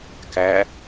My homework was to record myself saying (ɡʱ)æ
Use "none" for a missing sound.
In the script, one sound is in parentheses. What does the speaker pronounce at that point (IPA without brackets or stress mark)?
k